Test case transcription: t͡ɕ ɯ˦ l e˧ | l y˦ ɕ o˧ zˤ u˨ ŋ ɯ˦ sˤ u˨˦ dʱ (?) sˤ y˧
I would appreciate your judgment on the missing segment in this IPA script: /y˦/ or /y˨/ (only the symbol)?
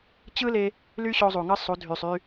y˨